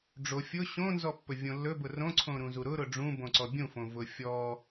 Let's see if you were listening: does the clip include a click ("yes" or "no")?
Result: yes